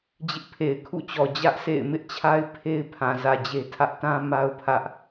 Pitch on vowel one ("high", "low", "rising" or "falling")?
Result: high